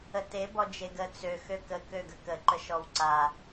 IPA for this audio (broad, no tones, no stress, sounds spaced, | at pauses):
ə t e b ɔ d͡ʒ e ɡ ə t͡s ø x ø k ə k ø ɡ ə k ə ǃ ə ʃ ɔ w ǀ a